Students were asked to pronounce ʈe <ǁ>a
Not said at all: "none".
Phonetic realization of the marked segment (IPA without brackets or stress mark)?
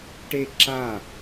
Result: ǁ